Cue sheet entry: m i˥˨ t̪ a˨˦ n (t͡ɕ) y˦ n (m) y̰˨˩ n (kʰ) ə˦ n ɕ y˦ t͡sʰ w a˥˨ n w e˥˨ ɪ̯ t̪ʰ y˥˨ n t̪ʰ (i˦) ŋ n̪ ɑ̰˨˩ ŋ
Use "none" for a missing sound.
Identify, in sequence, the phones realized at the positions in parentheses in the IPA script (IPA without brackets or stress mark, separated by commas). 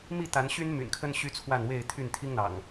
ɕ, m, kʰ, i˦